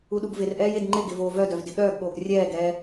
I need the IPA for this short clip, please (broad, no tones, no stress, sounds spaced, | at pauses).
u ɗ u ɡ v ɪ r ʔ ɛː j e d ŋ͡ǃ ɪ ɡ ɪ v oː v œ d œ v d ɪ ɠ œː ɡ ɠ oː ɡ rʲ ɛː ɡ ɛː